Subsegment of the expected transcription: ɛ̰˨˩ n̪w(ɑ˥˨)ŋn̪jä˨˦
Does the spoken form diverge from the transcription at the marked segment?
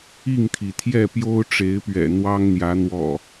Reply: yes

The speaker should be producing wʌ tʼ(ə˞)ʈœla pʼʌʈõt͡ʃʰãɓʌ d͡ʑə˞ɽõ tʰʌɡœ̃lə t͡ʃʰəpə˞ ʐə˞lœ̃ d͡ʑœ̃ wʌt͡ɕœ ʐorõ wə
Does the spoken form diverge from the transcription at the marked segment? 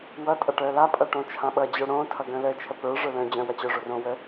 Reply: yes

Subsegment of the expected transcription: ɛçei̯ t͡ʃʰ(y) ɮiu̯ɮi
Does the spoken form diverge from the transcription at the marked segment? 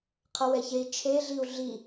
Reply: yes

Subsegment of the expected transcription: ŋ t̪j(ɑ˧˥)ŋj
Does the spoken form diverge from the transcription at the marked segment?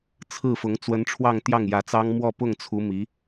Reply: yes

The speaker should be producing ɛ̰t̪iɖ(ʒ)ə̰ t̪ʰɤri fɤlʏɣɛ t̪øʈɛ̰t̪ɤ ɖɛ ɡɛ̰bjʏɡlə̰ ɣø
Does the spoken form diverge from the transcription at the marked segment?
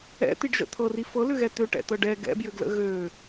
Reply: no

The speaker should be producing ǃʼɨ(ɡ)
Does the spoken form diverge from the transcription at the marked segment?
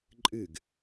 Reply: no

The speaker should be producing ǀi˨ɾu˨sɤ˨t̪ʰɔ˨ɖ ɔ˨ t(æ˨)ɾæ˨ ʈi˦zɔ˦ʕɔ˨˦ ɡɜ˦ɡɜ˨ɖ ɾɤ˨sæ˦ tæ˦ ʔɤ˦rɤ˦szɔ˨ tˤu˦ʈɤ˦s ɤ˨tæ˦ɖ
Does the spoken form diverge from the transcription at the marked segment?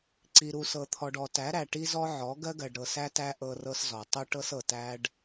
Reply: yes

